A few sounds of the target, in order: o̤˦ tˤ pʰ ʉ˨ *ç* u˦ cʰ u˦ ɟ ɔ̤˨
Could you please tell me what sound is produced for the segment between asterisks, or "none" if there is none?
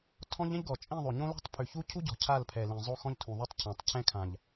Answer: ç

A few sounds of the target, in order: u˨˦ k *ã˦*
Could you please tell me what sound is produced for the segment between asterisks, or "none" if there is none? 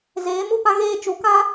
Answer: ã˦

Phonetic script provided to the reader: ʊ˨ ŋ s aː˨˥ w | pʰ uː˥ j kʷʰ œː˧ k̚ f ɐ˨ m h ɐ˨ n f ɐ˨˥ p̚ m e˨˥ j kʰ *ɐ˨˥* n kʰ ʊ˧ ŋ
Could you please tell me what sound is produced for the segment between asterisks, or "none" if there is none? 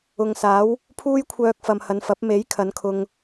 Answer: ɐ˨˥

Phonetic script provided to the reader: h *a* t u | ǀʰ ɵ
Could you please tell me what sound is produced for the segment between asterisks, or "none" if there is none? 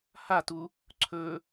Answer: a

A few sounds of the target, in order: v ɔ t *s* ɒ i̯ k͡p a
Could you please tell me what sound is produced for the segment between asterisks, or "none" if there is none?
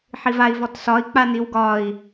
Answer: s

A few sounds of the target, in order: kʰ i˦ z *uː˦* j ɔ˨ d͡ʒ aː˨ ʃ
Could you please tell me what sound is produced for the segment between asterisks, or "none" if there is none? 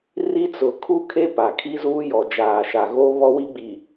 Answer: uː˦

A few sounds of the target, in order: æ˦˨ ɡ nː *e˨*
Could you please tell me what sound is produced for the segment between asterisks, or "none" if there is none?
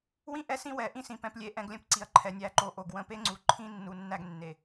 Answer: e˨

